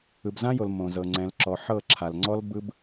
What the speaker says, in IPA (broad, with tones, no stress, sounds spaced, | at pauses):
ɯ˨ b z ã˦ j o˨ l m õ˨ z ɤ˨ ŋ͡ǀ ɛ̃˨ l ǁ ɔ˨ ħ ɤ˦˨ ǁʰ a˨ l ŋ͡ǀ ɔ˦ l b ɯ˦ b